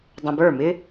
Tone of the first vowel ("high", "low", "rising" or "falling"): low